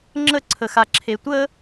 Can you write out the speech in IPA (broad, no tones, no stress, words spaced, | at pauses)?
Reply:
ŋ͡ǁəǀʰəxaǁʰe tʷə